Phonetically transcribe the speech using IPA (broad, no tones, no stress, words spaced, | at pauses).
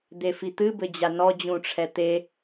d̪efit̪ɨ bɘd͡ʑanɔ d͡ʑũʈ͡ʂʰɛt̪e